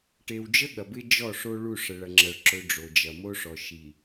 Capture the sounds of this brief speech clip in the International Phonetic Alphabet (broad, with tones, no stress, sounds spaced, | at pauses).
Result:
ʈ e˨ w d͡ʒ ə˦ ɠ ɐ˨ b ɪ˦ d͡ʒ ɔ˦˨ ʂ o˦ ɭ u˦˨ ʂ ə˨ ɭ ɐ˨ ŋ͡ǁ ɐ˨ ɭ ǁ ɵ˨ ɖ͡ʐ o˨ d͡ʒ ɐ˨ m o˦ ʂ ɔ˨ ʃ i˨